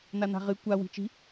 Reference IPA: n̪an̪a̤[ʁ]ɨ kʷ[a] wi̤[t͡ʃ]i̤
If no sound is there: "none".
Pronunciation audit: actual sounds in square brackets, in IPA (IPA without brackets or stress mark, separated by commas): ʁ, a, t͡ʃ